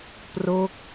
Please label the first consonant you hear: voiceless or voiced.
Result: voiceless